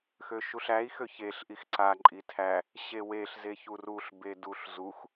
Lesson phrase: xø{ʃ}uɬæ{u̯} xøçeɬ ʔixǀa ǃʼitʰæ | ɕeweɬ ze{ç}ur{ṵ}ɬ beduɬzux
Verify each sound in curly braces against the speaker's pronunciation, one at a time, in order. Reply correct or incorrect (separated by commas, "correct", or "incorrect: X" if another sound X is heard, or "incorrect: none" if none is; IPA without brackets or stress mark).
correct, incorrect: i̯, correct, incorrect: u